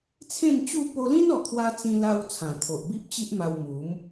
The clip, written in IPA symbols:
t͡sʰẽ˥˧nt͡ɕu˥˧ po˧lĩ˦nɔ˨˩kʰwa˧ t͡sĩ˧la˧w t͡sʰã˨˩t̪ʰo˨ʔ bi˦p̚t͡ɕi˦ʔma˧w mu˨˦m

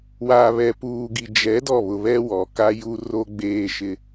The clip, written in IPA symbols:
wa˨βɛ˨puː˨ɡi˨ d͡ʒɛ˨˦ dɔ˦˨βʊ˨βɛ˦ wɔ˨ka˦ ju˦ ro˦ ɡ͡beː˦ʃɪ˦

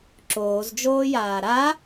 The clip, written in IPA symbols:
ǁoːzd͡ʒoːjaː ɾa

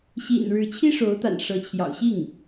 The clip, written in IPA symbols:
ɕḭ˨˩nɻɻ̩˧˥t͡ɕʰi˥ ʂo˧˥ʊ̯t̪a̰˨˩n ʂɤ˧˥ t͡ɕʰjɑ̰˨˩ʊ̯ɕi˥˩ŋ

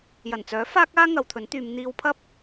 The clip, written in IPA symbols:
jɐ˨˩nt͡sœː˨˥ faː˥k̚aː˥ ŋɐ˨˧wt̪ʰɵ˨˥nt̪yː˨˧m n̪iː˧wpʰɐ˥p̚

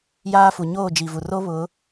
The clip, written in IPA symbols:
jaː˦fu˨ ɲoː˦˨d͡ʒi˨vu˨ ro˦βʊ˨˦

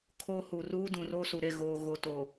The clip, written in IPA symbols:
kʰo˦hu˨ ruː˦dũ˨roː˦su˨ ɾe˦˨ɣoː˨ɣo˨toː˨

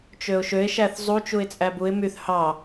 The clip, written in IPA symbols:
t͡ʃøʊ̯ʃøɪ̯ ʃæθzˤu t͡ʃuɪ̯t͡sʼæbuɪ̯ myθ hɑ

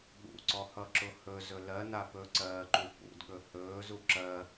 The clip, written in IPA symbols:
ɠṵǀɔhʌǁʊ hɵzɵ lɜna pɵǀɜːǃu pṵdɠɵ hɵːzu ǁɜ

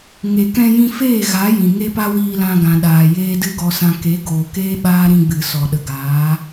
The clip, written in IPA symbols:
ŋe˨kɛ̃˧jĩ˧ feː˦˨ɣa˨˦ jĩ˨ ŋe˦pa˦wiː˧lã˧ ɡã˨ɗaː˨ jeː˦dɨ˦ɡɔ˧sã˧ ke˨˦ ɡoː˨keː˦ ɓaː˦ ɾĩ˧ɡ͡bɨ˨ sɔ˨ɗə˨ɡaː˨˦

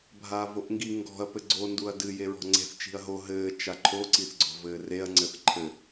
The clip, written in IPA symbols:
bʱaːvoʔŋɡi ŋɡɔ̤ɐ̯ pɘɡ͡ǀo nduɐ̯dɨ jeɹɔ̤ŋ͡ǀe̤θ t͡ʃi̤ɐ̯ɦo ɦɘː t͡ʃaǃʰo ǀiθɡ͡ǀɔ̤vɘːreɐ̯ ŋ͡ǀɘθǃʰɘ

